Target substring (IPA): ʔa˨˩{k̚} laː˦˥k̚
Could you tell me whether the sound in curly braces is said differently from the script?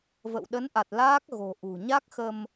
yes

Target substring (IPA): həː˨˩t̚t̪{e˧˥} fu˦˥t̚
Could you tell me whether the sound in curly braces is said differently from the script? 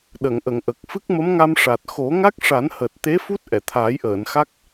no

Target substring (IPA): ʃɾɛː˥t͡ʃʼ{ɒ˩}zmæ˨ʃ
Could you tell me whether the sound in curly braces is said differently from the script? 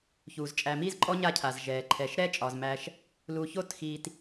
no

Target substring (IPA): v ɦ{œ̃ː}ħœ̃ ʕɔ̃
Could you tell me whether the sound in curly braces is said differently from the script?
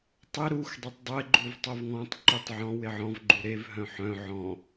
yes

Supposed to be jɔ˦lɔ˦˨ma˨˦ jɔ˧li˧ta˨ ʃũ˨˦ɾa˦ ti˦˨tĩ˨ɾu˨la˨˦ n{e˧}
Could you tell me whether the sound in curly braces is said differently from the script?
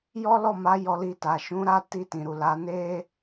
yes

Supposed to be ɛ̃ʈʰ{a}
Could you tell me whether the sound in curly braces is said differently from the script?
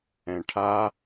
no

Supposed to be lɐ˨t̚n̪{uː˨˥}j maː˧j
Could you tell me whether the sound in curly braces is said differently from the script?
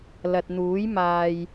no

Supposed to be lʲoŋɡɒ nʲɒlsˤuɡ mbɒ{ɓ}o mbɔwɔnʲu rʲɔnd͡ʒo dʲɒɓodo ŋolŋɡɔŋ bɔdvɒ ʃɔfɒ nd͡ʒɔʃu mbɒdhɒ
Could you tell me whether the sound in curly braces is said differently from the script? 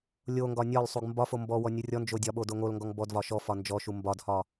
yes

